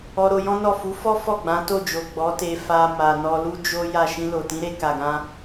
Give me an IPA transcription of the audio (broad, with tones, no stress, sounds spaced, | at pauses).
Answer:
ɔ˧ ɾ o˧ j ɔ̃˦ n ɔ˦˨ f u˨˦ f ɔ˦ f ɔ˦˨ ɡ͡b ã˨˦ t o˦˨ d͡ʒ o˨ ɡ͡b ɔ˨˦ t e˧ f a˧ m a˨ n ɔ˧ l u˦ d͡ʒ o˦ j a˦˨ ʃ ĩ˧ l o˨ t ĩ˨˦ ɾ e˧ k a˨ ɡ ã˧